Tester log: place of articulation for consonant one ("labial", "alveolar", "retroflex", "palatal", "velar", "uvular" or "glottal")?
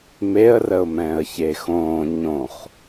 labial